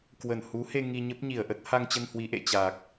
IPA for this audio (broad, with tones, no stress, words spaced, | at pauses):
kwə˧˩nhu˨˦he˧ ŋi˧ɲə˦˥p̚ɲi˧˩ə̯ʔə˦˥t̚ ha˧ŋt͡ɕə˧n hwi˨˦ʔḛ˧˨t͡ɕa˨˩k̚